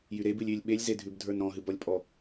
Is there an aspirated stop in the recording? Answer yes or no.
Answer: no